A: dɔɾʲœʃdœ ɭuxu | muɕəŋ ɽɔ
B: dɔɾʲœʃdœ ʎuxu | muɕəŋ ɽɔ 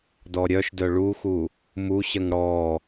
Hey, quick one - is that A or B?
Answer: A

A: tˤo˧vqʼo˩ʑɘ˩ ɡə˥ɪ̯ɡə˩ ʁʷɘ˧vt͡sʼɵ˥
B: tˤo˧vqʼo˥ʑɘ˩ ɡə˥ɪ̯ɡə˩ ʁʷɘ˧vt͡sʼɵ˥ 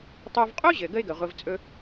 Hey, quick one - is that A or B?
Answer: B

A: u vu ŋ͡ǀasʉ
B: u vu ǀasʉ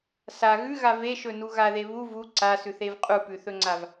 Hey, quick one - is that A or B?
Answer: B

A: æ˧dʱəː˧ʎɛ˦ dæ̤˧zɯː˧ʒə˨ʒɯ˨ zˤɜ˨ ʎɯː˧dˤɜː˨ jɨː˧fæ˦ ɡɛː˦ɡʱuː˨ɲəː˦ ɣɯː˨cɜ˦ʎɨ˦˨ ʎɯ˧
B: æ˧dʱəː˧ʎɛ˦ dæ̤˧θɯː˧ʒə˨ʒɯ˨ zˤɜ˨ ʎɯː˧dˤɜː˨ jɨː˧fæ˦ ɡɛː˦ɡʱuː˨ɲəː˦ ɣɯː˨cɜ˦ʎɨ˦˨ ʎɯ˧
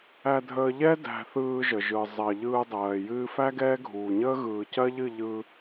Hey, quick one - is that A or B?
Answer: B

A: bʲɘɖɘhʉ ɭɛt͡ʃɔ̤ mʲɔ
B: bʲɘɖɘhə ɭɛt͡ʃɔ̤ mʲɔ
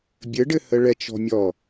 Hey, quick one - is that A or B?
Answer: B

